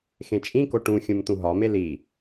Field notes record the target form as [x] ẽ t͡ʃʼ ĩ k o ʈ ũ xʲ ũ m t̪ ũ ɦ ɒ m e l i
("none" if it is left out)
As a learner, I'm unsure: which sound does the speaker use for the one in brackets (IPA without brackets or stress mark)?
x